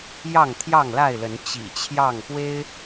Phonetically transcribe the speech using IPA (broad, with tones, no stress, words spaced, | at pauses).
jɑ˥˨ŋt̪ʰjɑ˥˨ŋla˥˨ɪ̯lə˨˦n t͡ɕḭ˨˩t͡ɕʰjɑ˥˨ŋpwe˦ɪ̯